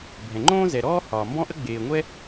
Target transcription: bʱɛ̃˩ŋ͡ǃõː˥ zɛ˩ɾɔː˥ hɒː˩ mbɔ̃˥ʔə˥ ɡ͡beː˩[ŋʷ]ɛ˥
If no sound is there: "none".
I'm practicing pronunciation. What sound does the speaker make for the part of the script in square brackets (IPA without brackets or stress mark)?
ŋʷ